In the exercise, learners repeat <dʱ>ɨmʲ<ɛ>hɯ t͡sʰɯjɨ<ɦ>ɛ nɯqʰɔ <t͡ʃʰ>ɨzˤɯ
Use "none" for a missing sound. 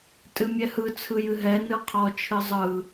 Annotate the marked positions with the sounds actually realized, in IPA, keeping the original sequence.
tʼ, ɛ, ɦ, t͡ʃʰ

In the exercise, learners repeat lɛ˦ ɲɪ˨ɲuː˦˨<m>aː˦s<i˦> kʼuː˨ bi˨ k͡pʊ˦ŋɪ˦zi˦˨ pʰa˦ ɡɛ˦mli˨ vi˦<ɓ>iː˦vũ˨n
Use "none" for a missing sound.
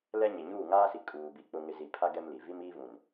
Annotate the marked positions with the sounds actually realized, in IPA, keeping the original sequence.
ŋ, i˨, m

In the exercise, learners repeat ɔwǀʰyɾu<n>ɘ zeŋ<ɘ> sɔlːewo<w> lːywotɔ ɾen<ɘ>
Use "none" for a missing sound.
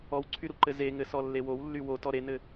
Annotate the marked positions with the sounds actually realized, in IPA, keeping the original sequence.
ǃ, ɘ, w, ɘ

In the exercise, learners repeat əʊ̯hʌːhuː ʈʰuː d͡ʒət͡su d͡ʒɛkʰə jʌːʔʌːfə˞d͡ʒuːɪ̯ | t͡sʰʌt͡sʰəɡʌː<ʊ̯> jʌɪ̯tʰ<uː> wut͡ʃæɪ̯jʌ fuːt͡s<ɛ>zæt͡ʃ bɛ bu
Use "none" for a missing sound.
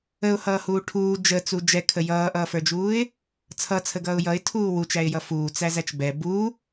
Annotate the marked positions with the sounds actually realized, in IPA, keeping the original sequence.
ʊ̯, uː, æ

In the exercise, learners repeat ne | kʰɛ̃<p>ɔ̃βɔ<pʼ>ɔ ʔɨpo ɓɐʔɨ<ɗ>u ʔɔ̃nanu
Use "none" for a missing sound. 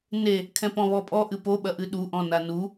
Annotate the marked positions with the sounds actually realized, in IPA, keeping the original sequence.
p, pʼ, ɗ

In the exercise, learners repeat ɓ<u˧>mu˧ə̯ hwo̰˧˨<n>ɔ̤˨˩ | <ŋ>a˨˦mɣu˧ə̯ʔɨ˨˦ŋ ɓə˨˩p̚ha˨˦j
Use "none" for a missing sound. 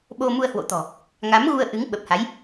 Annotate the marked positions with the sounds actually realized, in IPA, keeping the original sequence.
o˧, t̪, ŋ

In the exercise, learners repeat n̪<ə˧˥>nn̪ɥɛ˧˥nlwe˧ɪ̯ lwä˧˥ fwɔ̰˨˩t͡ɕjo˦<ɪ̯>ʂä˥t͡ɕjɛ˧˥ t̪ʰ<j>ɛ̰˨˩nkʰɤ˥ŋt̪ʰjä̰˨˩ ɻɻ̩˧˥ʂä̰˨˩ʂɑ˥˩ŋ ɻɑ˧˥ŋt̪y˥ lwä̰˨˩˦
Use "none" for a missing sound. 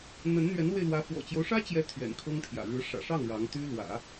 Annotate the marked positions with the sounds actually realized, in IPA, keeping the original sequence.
ə˧˥, ʊ̯, ɥ

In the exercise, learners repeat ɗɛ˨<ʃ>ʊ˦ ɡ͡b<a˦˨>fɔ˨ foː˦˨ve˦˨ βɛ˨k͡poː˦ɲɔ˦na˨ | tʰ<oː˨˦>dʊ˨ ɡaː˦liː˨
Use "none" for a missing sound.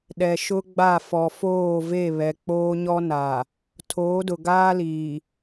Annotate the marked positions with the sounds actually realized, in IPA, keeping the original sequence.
ʃ, a˦˨, oː˨˦

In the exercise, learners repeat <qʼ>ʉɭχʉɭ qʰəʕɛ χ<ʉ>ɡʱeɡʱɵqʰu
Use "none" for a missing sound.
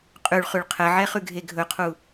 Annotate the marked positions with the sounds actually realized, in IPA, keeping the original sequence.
qʼ, ʉ

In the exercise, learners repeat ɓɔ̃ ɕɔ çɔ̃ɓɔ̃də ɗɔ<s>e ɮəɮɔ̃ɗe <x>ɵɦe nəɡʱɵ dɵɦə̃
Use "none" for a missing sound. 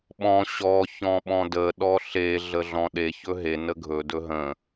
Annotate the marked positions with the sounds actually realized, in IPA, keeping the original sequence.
ɬ, ç

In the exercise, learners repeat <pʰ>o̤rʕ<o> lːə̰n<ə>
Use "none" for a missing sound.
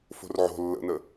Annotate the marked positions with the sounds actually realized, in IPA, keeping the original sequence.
f, o̤, ə

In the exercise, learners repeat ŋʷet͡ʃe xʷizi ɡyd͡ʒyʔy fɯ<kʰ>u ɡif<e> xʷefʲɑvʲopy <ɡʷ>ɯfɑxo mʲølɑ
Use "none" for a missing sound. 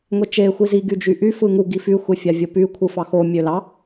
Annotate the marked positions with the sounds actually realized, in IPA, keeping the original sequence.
ŋ, y, kʷʰ

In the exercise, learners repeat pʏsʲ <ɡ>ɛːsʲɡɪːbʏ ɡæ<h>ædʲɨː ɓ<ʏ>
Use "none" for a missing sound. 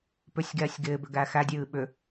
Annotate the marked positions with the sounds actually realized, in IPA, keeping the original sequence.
ɡ, x, ʏ

